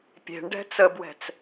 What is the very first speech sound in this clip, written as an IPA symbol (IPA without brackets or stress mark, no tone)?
pʲ